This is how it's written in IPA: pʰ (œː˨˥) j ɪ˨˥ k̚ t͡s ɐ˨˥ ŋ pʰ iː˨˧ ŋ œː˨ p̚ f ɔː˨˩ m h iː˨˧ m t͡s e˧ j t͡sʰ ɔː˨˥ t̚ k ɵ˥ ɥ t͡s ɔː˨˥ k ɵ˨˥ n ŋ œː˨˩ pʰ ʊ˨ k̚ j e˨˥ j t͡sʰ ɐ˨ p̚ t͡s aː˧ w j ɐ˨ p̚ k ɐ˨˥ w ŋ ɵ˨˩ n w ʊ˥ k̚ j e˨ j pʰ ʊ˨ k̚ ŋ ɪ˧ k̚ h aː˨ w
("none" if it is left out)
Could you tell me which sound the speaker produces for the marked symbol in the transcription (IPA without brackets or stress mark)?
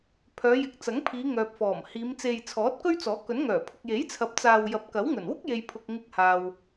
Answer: œː˨˧